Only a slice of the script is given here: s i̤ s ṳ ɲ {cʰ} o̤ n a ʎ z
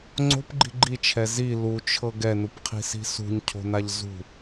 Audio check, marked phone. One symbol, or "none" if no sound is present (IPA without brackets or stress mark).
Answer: cʰ